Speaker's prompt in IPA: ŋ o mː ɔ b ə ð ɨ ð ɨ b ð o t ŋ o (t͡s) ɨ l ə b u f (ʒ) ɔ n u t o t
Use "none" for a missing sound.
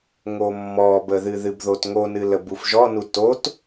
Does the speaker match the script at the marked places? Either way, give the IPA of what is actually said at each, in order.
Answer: n, ʒ

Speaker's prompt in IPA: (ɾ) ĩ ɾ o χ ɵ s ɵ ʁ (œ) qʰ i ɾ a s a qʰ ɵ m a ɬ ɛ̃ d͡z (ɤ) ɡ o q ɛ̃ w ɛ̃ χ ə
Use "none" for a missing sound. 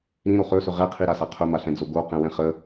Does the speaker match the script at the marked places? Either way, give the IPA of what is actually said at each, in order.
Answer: ɾ, ɛ, o

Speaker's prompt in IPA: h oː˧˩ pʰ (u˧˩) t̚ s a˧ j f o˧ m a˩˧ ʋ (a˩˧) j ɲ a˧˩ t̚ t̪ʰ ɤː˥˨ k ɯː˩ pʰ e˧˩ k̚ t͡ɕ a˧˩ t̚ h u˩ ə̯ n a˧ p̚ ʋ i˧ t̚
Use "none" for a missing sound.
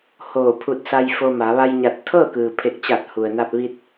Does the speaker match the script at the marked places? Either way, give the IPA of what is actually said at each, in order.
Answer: u˧˩, a˧

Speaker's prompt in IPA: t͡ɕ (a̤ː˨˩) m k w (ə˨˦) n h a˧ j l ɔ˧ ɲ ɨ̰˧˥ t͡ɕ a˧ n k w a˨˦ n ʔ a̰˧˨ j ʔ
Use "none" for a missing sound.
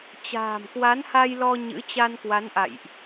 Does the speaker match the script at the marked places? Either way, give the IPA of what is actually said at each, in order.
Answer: a̤ː˨˩, a˨˦

